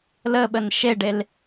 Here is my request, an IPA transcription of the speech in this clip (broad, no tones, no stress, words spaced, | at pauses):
ləɓən ʃeɖel